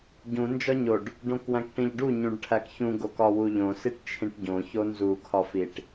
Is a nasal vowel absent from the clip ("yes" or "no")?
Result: no